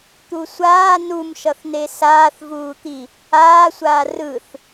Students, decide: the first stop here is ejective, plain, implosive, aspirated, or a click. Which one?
plain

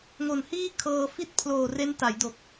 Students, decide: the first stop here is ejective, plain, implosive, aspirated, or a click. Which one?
aspirated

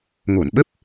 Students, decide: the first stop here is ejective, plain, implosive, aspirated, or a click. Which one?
implosive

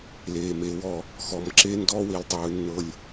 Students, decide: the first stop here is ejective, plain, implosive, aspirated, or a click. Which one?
click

